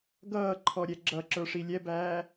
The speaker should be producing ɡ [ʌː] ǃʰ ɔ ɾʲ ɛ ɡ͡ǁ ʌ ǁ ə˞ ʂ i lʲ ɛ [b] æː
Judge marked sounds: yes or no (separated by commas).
yes, yes